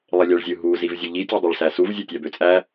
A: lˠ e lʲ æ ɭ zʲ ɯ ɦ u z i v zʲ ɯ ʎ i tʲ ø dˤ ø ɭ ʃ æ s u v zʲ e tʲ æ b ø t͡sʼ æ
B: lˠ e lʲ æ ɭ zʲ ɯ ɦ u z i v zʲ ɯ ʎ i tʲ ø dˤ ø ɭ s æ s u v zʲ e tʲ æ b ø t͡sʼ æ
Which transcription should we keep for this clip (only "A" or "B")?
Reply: B